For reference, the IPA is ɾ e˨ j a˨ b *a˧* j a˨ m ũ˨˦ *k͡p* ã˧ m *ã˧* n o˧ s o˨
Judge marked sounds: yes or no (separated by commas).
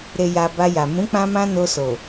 yes, yes, yes